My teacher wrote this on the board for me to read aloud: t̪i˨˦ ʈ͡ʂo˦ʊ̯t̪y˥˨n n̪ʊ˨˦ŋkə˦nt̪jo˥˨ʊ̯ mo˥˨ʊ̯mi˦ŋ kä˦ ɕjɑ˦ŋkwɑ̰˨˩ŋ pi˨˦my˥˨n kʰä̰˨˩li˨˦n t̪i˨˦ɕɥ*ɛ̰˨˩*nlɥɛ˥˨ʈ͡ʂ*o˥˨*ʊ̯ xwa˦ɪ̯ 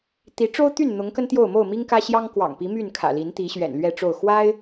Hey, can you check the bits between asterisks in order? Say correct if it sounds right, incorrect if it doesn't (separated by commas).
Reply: correct, correct